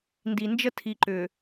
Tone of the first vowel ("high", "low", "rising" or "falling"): low